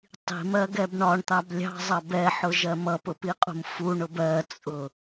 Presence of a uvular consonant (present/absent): present